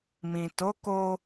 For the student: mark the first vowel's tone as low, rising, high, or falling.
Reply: low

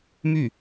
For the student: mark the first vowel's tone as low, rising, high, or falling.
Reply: falling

